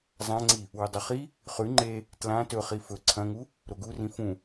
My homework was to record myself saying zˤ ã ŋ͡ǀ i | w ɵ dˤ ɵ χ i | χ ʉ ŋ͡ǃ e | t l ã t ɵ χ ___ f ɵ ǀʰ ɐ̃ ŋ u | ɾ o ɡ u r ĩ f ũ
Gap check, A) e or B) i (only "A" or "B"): B